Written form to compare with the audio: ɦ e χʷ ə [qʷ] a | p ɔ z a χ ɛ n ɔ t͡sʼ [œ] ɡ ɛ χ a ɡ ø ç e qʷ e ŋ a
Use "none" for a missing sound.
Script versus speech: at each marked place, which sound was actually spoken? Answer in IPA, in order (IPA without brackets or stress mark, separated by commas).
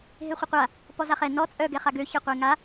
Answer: qʷ, œ